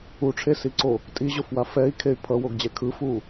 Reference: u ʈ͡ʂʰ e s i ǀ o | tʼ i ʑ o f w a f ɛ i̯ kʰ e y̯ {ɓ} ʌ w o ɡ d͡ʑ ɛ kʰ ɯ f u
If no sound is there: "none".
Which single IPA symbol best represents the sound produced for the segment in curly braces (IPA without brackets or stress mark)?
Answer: pʰ